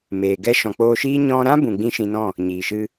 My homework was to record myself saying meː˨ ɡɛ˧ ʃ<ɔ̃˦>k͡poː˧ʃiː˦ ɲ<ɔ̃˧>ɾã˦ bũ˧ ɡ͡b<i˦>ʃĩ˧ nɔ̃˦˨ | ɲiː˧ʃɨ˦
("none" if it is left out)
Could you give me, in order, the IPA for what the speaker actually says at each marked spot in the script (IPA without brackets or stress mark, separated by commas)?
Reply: ɔ̃˨, ɔ̃˧, ĩ˦